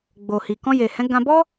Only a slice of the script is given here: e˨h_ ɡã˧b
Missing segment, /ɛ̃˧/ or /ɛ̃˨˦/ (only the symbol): ɛ̃˨˦